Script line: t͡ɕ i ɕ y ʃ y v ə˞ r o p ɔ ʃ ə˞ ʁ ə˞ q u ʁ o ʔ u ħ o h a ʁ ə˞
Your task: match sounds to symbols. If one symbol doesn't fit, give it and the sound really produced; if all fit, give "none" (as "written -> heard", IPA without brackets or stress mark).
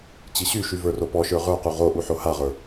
none